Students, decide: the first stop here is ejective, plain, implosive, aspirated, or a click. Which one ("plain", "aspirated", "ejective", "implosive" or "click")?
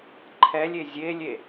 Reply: click